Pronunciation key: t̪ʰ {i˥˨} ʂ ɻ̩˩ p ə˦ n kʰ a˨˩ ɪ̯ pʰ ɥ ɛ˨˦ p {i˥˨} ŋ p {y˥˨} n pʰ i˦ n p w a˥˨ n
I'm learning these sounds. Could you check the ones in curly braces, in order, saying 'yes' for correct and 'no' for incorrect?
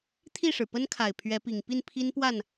yes, no, no

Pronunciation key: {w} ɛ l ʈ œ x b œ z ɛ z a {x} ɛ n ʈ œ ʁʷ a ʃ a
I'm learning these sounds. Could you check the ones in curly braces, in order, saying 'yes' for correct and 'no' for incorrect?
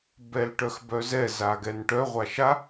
no, no

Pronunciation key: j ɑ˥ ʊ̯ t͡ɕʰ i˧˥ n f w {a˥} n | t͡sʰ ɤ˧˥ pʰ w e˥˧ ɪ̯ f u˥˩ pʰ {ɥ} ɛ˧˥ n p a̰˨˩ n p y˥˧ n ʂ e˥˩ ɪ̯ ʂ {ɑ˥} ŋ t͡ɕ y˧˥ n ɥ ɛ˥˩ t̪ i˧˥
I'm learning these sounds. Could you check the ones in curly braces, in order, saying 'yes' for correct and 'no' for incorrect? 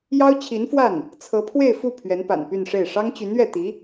no, yes, yes

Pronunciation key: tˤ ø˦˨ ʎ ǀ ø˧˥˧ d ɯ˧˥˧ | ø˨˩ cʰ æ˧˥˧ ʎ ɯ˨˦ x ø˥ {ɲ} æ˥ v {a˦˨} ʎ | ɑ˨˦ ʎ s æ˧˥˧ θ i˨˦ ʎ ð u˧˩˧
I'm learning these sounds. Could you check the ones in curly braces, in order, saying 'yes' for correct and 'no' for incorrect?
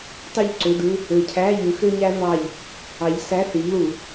yes, no

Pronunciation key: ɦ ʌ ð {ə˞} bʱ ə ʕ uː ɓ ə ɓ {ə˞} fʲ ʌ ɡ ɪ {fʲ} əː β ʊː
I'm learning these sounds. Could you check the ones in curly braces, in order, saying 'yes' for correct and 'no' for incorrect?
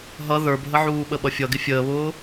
yes, no, yes

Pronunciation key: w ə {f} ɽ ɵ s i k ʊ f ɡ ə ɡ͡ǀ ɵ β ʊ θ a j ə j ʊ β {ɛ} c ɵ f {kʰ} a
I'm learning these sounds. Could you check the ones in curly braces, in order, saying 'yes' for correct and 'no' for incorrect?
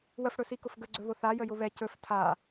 yes, yes, no

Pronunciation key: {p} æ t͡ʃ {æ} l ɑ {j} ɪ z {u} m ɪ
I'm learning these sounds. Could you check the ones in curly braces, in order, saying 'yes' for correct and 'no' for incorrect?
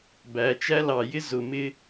no, yes, yes, no

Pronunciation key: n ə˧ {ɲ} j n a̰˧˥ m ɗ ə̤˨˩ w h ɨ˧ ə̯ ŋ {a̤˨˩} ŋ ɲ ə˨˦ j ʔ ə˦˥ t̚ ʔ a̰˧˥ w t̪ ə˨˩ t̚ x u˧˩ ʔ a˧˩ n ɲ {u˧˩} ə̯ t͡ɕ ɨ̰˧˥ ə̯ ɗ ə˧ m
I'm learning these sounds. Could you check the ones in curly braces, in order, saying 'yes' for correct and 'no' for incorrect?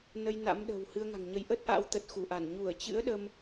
no, yes, yes

